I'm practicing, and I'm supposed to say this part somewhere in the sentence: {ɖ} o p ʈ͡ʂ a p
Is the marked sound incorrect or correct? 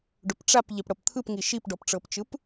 correct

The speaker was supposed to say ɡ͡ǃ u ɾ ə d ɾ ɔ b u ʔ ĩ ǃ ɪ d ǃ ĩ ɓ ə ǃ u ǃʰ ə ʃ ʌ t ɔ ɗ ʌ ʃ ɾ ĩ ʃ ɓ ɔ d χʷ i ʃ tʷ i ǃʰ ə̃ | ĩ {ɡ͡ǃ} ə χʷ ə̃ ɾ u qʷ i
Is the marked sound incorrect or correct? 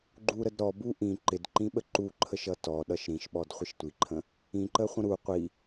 incorrect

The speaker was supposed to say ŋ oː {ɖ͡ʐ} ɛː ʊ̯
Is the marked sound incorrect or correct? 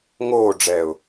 correct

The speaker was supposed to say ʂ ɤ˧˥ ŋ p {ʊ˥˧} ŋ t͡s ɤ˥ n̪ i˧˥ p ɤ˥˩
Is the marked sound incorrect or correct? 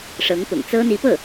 incorrect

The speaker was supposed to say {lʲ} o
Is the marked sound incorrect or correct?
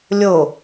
correct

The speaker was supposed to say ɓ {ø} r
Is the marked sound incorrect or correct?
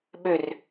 correct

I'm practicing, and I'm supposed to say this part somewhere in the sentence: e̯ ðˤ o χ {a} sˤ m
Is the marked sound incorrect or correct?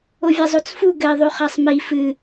correct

